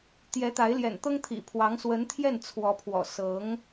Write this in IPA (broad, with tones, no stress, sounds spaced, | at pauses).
t̪ j ɛ˧˥ t̪ a˧˥ ɪ̯ l j ɛ̰˨˩ n t̪ ɤ˥ ŋ t̪ʰ ḭ˨˩ pʰ w ɑ˧˥ ŋ s w ə˧˥ n t̪ʰ j ɛ˥˩ n t͡sʰ w ɔ˧˥ pʰ w ɔ̰˨˩ s ɤ˧˥ ŋ